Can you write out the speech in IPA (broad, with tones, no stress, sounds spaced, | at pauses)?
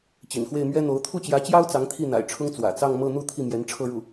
t͡ɕ ḭ˨˩ n x w e˥˩ ɪ̯ m ɥ ɛ˥ n̪ o˧˥ ʊ̯ t̪ʰ u˥˩ t͡ɕ j ä˧˥ t͡ɕ j ɑ˥ ʊ̯ t͡s ɑ˧˥ ŋ t̪ʰ i˥˩ n̪ a̰˨˩ ɪ̯ ʈ͡ʂʰ ʊ˥ ŋ t͡s w ä̰˨˩ t͡s ɑ˥˧ ŋ m ɤ˥˧ n̪ u˥˧ t̪ʰ i˥˩ m j ɛ˧˥ n ʈ͡ʂʰ ɤ˥˧ ɻ u˥˩